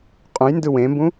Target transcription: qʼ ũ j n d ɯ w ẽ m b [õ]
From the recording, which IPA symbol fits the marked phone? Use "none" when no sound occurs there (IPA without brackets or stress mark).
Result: ũ